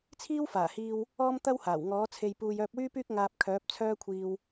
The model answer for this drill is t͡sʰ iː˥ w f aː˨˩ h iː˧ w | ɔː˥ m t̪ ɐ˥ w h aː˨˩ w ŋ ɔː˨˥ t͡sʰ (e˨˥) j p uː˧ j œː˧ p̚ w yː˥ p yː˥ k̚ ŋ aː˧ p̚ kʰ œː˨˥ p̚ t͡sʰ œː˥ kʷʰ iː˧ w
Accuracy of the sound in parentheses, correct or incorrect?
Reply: incorrect